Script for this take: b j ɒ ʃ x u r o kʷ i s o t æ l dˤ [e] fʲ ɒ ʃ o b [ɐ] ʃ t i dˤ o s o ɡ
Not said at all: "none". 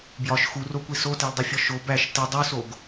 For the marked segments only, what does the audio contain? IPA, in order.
i, æ

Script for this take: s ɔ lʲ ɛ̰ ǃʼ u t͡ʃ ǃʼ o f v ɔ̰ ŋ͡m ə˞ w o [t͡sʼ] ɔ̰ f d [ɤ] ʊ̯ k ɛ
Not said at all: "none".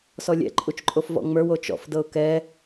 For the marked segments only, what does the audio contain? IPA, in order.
t͡ʃ, ɤ

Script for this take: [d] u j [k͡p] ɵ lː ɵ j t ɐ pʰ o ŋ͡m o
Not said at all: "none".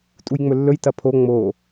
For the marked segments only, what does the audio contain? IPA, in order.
tʼ, ŋ͡m

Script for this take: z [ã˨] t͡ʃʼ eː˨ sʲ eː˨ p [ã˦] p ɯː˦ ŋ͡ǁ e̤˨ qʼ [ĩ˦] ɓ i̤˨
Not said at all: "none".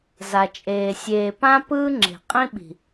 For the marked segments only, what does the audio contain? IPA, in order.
a˨, ã˦, ĩ˦

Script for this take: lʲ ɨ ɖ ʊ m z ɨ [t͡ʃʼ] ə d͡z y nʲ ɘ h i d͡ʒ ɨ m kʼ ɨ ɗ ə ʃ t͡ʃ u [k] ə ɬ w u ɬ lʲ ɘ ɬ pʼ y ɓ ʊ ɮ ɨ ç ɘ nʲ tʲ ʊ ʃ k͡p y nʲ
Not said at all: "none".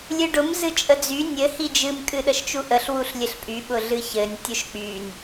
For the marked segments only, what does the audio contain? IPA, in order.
t͡ʃʼ, ʔ

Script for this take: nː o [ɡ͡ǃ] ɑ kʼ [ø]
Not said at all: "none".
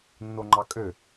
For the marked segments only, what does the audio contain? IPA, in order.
ŋ͡ǃ, ø

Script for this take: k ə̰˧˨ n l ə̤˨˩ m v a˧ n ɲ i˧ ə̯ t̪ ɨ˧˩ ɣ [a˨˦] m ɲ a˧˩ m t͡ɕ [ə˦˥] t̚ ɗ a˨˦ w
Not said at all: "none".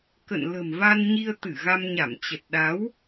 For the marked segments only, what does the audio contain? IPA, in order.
a˧, ə˨˩

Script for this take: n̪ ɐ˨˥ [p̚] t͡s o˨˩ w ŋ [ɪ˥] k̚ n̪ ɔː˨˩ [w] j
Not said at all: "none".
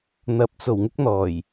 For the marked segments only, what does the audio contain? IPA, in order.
p̚, ɪ˥, none

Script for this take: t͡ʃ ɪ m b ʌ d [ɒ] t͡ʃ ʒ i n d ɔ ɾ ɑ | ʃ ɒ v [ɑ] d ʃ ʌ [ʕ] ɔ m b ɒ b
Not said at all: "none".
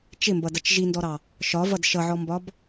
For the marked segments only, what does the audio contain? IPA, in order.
ʌ, ʌ, ʕ

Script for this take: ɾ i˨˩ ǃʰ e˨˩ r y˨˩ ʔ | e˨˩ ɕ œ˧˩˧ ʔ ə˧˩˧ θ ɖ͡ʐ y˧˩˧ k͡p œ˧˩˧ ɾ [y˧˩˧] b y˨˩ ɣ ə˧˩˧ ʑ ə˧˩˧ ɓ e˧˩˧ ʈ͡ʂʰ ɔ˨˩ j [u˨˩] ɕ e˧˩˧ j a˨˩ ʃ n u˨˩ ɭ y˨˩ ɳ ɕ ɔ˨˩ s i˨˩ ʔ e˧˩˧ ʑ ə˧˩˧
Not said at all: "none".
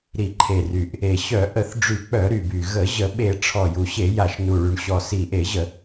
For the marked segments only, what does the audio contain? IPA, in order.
y˨˩, u˨˩

